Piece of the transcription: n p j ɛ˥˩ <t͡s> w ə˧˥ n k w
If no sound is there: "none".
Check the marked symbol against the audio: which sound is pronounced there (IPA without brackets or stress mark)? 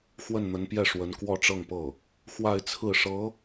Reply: ʂ